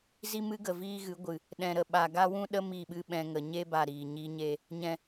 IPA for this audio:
z i˦ m ɨ˦ ɡ ə˨ v iː˦ ɣ ɨ˨˦ ɡʷ ɨ˨ | ɗ ɛ̃˨ ɾ ə˨ ɓ a˨ ɡ a˦ w ũ˦ ɗ ə˦ m i˦˨ ɓ ɨ˦ ɓ ɛ̃˧ ŋ ə˨ ɲ e˦ b a˦˨ ɾ iː˨ ɲ i˧ ɲ e˧ | ɲ ɛ̃˨

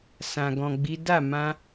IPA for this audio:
s ã˨ ɡ ɔ̃˨ ɡ͡b i˨˦ d a˦˨ m ã˧

